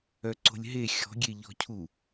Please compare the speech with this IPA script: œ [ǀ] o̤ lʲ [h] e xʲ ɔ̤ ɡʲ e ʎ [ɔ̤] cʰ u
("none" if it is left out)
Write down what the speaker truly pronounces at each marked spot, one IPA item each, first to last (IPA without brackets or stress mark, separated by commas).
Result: ǀ, ɦ, ɔ̤